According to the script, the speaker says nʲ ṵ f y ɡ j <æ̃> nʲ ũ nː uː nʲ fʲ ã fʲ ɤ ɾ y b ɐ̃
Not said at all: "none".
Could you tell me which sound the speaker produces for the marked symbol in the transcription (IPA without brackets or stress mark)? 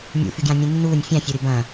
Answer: ã